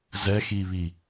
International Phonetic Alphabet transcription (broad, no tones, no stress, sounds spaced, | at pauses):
z ɛ x i β i